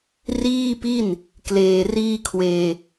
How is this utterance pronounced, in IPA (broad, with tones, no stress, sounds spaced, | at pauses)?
r iː˥˩ p i˥˩ n | k l eː˧ r iː˥˩ kʰ w eː˧